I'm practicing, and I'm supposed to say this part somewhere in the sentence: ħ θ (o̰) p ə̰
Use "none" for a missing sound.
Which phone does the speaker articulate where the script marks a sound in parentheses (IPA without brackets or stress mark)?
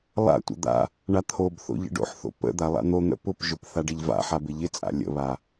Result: o̰